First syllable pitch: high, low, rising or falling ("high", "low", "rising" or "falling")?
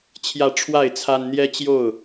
rising